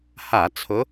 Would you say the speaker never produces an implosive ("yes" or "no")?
yes